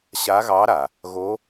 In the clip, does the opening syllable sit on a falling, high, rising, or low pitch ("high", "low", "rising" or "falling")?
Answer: rising